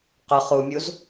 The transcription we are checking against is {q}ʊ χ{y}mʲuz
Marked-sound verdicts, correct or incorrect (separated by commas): correct, incorrect